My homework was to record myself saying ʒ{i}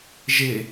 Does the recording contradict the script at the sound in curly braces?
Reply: yes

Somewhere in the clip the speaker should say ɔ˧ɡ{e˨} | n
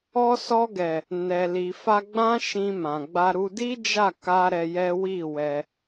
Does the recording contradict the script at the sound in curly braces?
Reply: yes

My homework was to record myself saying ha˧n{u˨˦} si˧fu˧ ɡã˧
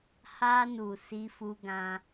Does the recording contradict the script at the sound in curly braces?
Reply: yes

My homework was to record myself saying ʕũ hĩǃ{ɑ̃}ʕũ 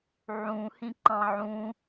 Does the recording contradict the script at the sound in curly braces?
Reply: no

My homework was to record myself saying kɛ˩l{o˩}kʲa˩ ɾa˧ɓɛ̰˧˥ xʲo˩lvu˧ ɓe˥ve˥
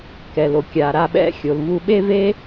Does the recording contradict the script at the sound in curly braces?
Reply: no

